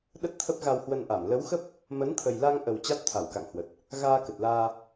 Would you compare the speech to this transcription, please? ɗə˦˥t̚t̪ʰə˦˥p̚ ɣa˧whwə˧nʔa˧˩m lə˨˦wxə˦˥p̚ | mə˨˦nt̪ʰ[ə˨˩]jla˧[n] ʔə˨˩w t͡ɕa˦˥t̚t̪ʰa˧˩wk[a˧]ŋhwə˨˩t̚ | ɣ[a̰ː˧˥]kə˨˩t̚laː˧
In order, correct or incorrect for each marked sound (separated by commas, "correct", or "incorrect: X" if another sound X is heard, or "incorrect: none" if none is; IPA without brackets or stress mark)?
correct, incorrect: ŋ, incorrect: a̰˧˨, incorrect: aː˧